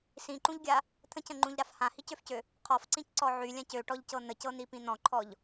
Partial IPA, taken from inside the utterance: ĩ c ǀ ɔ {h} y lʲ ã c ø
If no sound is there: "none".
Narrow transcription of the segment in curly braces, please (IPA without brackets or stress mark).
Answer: ʕ